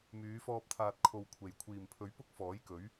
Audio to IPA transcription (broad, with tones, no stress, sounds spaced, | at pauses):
m yː˨˧ f ɔː˧ p̚ t̪ʰ aː˨ t̚ kʰ o˨ w kʷʰ e˨˩ j kʷʰ iː˨˩ m pʰ ɵ˨˥ ɥ p ʊ˥ k̚ f ɔː˨˥ j k ɵ˨˥ ɥ